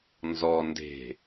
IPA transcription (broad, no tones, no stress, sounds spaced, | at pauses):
n z ɔ n d e̤